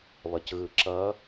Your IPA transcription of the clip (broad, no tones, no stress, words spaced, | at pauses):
βʌcɣɯǁʌ